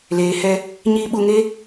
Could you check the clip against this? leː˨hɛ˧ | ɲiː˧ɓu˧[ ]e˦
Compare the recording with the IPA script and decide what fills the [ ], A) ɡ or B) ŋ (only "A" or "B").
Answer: B